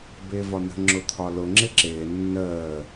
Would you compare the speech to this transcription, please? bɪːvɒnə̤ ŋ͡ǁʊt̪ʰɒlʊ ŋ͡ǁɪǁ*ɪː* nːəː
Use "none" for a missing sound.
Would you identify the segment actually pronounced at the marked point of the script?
ɪː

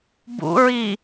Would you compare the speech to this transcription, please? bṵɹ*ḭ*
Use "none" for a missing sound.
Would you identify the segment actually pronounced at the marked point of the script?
i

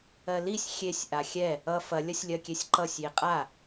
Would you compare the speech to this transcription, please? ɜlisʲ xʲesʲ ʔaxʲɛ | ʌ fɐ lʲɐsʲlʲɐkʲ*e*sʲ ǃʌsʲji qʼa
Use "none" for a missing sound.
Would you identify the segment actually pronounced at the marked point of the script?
e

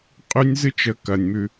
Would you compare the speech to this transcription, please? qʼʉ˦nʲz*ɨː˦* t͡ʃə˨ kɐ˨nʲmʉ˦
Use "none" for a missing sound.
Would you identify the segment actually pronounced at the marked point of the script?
ɨ˦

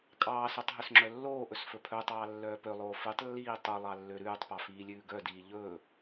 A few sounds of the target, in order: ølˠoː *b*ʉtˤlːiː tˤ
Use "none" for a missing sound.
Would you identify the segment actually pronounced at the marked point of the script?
f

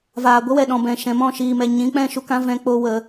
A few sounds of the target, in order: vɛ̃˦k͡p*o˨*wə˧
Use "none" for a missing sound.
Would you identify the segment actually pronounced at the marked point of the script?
o˦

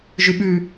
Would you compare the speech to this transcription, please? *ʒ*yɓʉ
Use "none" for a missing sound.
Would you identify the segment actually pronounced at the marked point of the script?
ʒ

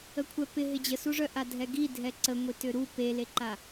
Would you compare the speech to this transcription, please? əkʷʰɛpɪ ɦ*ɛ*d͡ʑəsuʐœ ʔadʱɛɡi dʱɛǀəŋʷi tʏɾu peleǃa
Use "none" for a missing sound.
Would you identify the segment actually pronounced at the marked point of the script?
ɪ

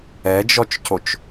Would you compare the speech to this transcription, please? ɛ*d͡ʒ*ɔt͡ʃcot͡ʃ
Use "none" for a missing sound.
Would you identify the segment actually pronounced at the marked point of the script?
d͡ʒ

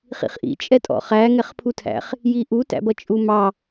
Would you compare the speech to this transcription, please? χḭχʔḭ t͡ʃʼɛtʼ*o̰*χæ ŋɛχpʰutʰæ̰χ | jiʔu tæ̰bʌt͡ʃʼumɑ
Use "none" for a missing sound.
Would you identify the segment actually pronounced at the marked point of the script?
ɔ̰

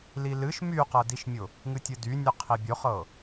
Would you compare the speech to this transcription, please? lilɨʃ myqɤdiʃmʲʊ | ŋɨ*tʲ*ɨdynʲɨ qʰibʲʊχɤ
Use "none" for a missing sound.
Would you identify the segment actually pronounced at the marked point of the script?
tʲ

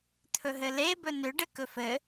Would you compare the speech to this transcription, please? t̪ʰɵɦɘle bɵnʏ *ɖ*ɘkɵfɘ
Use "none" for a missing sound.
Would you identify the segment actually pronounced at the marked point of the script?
ɖ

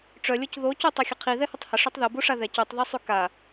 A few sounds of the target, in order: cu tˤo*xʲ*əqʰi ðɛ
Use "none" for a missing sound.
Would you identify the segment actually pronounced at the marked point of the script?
xʲ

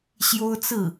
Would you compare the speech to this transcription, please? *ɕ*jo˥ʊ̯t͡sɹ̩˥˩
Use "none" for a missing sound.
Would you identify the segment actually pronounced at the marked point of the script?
ɕ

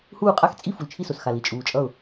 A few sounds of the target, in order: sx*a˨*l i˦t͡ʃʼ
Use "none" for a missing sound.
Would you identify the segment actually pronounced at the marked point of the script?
a˨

